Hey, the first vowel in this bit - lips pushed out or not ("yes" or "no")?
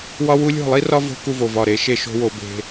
yes